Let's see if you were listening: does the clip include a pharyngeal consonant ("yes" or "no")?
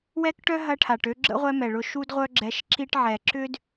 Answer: yes